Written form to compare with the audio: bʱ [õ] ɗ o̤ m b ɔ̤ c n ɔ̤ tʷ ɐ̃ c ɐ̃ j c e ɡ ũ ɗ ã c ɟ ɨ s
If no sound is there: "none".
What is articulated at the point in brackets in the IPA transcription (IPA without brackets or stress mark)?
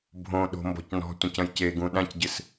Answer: õ